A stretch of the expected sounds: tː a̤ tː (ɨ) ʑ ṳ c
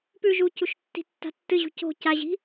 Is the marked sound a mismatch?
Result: no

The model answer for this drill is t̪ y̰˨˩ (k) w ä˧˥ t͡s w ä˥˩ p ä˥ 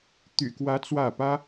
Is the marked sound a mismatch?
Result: no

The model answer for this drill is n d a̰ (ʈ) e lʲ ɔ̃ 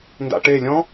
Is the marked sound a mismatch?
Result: no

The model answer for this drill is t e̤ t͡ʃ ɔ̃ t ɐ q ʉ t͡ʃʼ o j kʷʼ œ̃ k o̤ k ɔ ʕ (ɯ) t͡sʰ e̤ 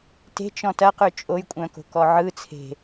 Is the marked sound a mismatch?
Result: no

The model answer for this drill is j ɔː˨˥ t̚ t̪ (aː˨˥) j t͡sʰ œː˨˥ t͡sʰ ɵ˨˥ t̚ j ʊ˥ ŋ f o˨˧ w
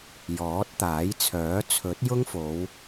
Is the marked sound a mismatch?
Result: no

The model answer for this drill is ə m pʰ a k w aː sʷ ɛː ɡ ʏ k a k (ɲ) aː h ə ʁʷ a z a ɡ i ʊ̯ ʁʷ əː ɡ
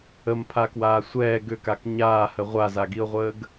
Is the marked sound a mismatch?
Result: no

